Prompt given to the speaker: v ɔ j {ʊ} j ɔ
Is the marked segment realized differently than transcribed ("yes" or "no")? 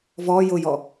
no